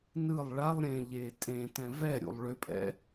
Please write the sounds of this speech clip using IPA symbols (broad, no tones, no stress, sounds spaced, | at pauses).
n ɯ lˠ ɭ a lˠ ɾʲ ẽ ʎ e tʼ ẽ t ɛ̃ v ɛ ɾʲ ṵ lˠ ɭ ʏ pʼ ɛ̰